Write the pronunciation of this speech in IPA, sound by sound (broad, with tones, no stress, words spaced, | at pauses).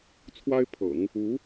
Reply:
t͡sʰwa˥ɪ̯pʰɤ̰˨˩˦ŋ | u˧˥